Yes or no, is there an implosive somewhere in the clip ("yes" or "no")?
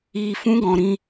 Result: no